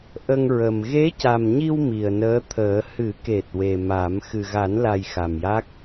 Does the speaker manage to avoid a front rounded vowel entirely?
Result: yes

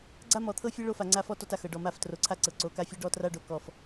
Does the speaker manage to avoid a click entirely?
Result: no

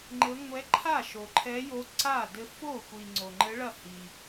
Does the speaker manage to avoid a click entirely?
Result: no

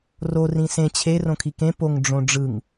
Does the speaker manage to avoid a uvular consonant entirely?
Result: yes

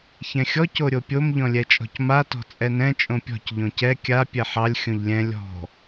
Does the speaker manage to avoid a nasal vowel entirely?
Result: no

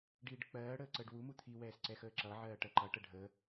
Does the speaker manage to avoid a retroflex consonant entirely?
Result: no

